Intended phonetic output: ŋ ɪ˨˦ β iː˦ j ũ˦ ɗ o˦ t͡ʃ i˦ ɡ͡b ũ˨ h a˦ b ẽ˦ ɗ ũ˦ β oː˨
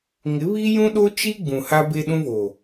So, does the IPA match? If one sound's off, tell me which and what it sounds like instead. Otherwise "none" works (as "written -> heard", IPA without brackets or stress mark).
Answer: ẽ˦ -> e˦